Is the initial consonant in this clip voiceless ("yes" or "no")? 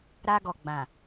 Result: no